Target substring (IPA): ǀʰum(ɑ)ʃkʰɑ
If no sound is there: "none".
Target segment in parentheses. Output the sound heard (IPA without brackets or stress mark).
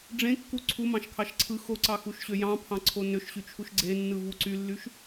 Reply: ɑ̃